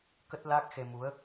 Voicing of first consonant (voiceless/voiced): voiceless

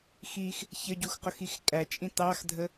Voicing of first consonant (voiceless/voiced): voiceless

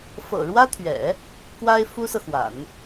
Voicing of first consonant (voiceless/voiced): voiceless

